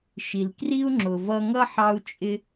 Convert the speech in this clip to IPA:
ʃi˩lkri˥u̯ŋ͡ǁʊ˩ vʌ˧ŋʌ˥ħɑ˧u̯ t͡ʃʼɪ˧

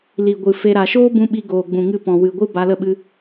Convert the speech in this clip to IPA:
li˨ɡʷɨ˨ fe˧ ɾa˨ʃoː˦bũ˧ ɓi˧ɡoː˨ɡ͡bũ˨ŋɨ˧ pɔ̃˨wɨ˨ɡʷɨ˦ ba˧lə˦˨ɓɨ˧

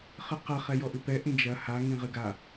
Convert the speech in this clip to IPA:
χɨqɐ χɛjɔʔɨpɛ ʔĩd͡ʒɐ ha ŋĩʁɨɡa

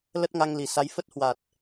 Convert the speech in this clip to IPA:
lə˦˥t̚ŋa˧ŋli˨˩sa˨˦j fə˦˥t̚hwa˨˩t̚

